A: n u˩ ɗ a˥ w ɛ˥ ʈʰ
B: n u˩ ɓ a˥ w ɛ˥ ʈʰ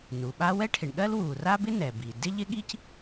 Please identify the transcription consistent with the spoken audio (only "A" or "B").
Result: B